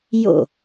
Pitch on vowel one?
falling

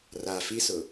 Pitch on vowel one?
low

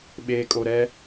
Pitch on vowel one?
low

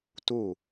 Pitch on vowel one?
falling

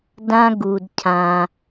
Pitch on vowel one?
high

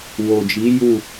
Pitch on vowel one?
low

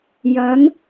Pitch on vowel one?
rising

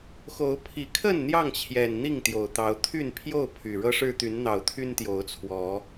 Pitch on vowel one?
rising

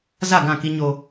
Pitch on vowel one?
falling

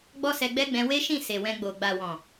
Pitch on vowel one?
high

